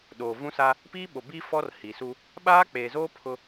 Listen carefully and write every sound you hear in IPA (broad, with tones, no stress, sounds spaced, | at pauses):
ɗ oː˨ v ũ˦ s a˦ | p iː˦ ɓ o˨ b i˦ f ɔ˦ r h i˨ s u˦ | ɓ aː˦ k͡p eː˨ z oː˦ pʰ ʊ˦